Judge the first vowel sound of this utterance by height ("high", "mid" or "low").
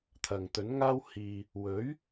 low